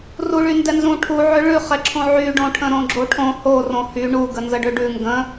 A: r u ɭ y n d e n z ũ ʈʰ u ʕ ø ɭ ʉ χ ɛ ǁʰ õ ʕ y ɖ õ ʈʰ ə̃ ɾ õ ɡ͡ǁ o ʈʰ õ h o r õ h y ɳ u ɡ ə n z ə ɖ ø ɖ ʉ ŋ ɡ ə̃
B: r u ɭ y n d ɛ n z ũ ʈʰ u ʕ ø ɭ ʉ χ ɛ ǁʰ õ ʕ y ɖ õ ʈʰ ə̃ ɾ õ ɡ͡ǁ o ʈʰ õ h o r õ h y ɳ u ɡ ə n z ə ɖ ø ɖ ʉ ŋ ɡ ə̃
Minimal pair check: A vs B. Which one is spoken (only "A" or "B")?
B